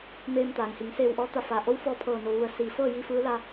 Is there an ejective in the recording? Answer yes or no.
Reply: no